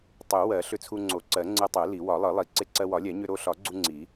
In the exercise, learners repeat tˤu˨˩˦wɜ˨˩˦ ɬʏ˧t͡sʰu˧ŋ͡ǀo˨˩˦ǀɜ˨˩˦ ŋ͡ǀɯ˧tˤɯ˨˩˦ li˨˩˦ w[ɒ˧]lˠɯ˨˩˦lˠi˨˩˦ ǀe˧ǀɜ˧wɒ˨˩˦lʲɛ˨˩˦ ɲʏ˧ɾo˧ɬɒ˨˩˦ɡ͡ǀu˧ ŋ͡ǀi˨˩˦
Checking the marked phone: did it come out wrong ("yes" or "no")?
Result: yes